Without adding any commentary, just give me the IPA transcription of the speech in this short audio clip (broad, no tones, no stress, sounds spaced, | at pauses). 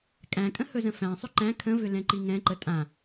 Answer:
kʼ æ̃ kʼ ə̃ h ɵ z ə̃ f æ̃ sˤ ʏ ǃ æ̃ kʰ ə̃ v ʏ l ɛ̃ ǃ i ŋ ɛ̃ ǃ ə tʼ ã